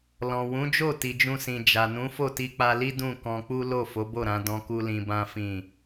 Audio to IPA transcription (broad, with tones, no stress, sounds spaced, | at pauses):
l ɔ̃˨ w ũ˨˦ d͡ʒ o˦˨ t i˨ d͡ʒ ũ˧ s ĩ˨ d͡ʒ a˨ n ũ˨˦ f o˦˨ t i˧ k͡p a˧ l i˦ d ũ˦˨ k ɔ̃˧ k͡p u˦ l o˦˨ f o˨˦ b o˦˨ ɾ ã˨˦ d ɔ̃˦ k u˦ l ĩ˧ b ã˦ f ĩ˦˨